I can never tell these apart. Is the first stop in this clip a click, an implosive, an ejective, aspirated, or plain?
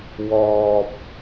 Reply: plain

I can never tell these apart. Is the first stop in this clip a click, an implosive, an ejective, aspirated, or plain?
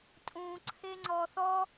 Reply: ejective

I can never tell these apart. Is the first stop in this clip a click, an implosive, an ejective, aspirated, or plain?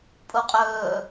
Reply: ejective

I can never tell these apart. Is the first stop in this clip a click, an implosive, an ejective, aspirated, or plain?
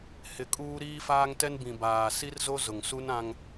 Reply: ejective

